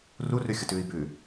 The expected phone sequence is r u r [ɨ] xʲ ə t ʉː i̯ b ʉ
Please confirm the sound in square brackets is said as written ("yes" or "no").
no